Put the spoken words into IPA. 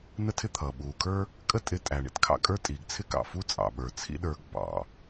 n ə˥ tʰ ɪ˥ t̪ʰ ʌː˩ ɓ uː˩ kʰ ə˞˥ | kʼ ə˥ tʼ ɪ˧ tʼ æ˩ ɳ ḭ˧ t kʰ ɑ̰˧ kʼ ə˞˥ tʼ iː˩ ɡ t͡sʰ ɪ˥ k ɑ̰˩ f u˥ t͡sʼ ɑ̰˩ ɓ ə˞˩ t͡sʰ ḭ˥ ɗ ə˞˧ ɡ b ɑ̰˩

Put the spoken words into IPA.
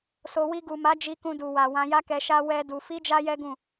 s o˨ w i˧ ɡ u˨ m a˨˦ d͡ʒ i˧ k ũ˧ d u˨ w a˨ w ã˧ j a˦ k ɛ˧ ʃ a˦ w ɛ˦ d u˧ f i˦ d͡ʒ a˦ j ɛ˦ ɡ ũ˦˨

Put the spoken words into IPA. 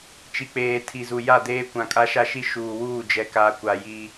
t͡ʃ i˨ k͡p eː˨ tʰ i˨ z u˨ j a˦˨ d eː˦ kʷ ã˨ kʼ a˦ ʃ a˦ ʃ i˦ ʃ uː˨ w uː˦˨ d͡ʒ ɛ˨ k aː˨ kʷ a˨ j i˦

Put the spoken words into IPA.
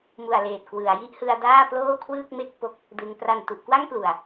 m u˨˩ a̯ l eː˨˩ t̚ k w ɯ˩˦ a̯ j i˥˩ ʔ h ɯ˧ a̯ d aː˥˩ p l oː˥˩ kʰ w ɯː˥˩ k̚ m e˥˩ k̚ p o˦˥ k̚ | d ɯ˧ ŋ p r a˨˩ n t u˨˩ ʔ k w a˥˩ ŋ p l u˨˩ a̯

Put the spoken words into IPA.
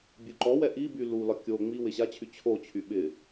bʲ u ǃ ɔ w ɛ ʔ i b y l u l ɒ kʲ o ŋ͡m i w ɪ ɕ a t͡ɕʰ y t͡ɕʰ o t͡ɕʰ y ɓ ɪ

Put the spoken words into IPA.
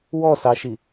w ɔ s ɑ ʃ i

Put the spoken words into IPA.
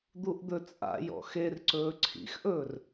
d̪ u ʔ d̪ ɵ t͡sʼ a̰ j ɔ̰ x e r ǀ ɵː ǀʰ ḭ x ʔ ɵː r

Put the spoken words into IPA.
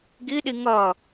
ɡ i ɗ i ŋ ʌ

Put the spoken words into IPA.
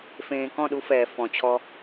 f ẽː˨ k ɔ̃˦˨ ɗ u˦ f ɛː˨ f ɔ̃˨ t͡ɕʰ ɔ˦

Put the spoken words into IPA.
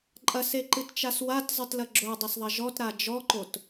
ǃʼ ɐ s e ǃ ɨ t t͡ʃ a s w a t zˤ ɨ t l ɐ ɡ͡ǁ o dˤ ɐ s ðˤ ɐ ʒ ɔ t ɾ a d͡ʒ ɔ ǃ o t

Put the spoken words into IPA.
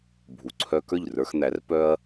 bʱ u˩ ǀʰ œ˧ k ə˞˥˩ ʎ r ə˞˧ x n̪ æ˩˥ r p œ˥ ɐ̯

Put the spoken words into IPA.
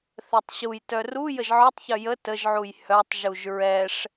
θ ɛ tˤ ɕ u j t œ r u j ə ʒ ʕ œ tˤ ç œ j ə t ə ʒ ʕ u j h œ tˤ ʒ u ʒ ɹ ɛ ʂ

